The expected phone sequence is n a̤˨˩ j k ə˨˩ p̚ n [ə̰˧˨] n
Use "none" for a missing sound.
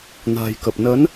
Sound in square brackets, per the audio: ə˨˦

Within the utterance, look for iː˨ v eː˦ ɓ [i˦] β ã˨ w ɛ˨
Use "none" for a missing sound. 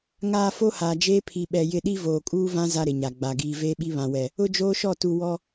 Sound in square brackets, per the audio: i˦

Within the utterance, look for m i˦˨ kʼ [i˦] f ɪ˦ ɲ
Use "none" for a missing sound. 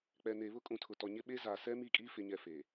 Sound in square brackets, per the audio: iː˦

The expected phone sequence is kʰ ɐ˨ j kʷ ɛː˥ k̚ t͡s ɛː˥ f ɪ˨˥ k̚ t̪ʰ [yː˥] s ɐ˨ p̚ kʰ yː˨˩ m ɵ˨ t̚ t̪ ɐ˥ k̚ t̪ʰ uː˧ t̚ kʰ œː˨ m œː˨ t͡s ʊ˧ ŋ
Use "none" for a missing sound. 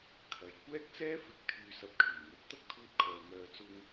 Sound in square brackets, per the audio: yː˨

